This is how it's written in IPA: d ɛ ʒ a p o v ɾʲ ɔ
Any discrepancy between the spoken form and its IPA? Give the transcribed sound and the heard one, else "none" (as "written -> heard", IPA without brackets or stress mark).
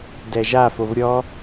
p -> f